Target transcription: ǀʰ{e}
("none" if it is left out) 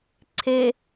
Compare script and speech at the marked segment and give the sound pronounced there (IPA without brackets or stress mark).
e